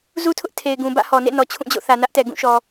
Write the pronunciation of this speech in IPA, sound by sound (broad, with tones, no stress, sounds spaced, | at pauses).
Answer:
z u˦ tʰ ʊ˦ ʔ tʰ e˨ ɪ̯ ɡ ũ˨ b ä̰˦˨ h ɔ˨ n ḛ˦˨ n ɔ˨ t͡ɕʰ ũ˦˨ d͡ʑ o̰˦˨ θ ä˨ n ä˦ ʔ t ɛ˨ ɡ ũ˦˨ ʃ ɔ˨